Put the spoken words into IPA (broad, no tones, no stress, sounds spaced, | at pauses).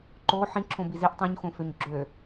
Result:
ǃ o ħ ĩ ǁʰ õ b i z i ʔ tˤ õ ɲ x õ f ø ɲ ɡ͡ǁ ø